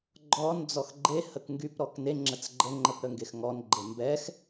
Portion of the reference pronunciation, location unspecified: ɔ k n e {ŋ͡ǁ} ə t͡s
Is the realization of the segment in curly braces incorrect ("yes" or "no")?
no